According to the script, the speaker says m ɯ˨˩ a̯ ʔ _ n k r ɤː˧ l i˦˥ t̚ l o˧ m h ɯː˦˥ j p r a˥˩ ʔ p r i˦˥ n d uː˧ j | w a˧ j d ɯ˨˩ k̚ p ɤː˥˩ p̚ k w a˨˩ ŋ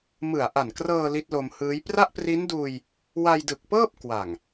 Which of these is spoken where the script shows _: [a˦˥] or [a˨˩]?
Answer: a˨˩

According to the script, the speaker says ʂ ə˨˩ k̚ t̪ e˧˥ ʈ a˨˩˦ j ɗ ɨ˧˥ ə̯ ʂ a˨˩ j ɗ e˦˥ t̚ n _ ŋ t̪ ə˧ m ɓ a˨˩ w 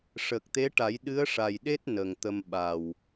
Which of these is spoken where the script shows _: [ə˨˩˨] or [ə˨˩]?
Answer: ə˨˩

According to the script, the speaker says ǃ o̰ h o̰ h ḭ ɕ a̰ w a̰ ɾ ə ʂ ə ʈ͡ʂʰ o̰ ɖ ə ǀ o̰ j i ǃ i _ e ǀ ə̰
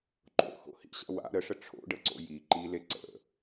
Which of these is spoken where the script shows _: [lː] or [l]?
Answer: l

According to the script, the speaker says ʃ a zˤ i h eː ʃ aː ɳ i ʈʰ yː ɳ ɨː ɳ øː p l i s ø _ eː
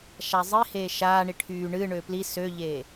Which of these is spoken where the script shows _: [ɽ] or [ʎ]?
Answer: ʎ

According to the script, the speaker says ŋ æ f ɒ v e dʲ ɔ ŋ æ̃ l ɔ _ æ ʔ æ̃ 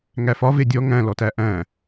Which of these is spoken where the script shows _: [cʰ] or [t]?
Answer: t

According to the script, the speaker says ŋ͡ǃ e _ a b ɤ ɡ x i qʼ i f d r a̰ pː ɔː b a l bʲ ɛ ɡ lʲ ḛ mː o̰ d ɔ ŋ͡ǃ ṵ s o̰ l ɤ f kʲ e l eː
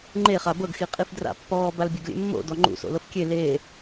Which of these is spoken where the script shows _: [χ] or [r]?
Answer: χ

